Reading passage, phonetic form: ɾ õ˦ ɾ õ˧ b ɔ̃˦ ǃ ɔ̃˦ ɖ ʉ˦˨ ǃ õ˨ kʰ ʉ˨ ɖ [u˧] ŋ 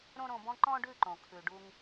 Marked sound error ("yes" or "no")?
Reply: no